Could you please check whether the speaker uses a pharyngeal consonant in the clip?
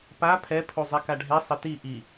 no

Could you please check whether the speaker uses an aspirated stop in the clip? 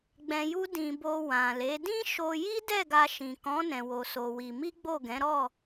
no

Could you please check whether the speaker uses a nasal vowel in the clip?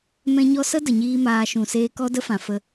yes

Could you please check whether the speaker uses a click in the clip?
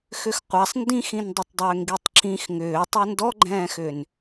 yes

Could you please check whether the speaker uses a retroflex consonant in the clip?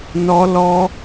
no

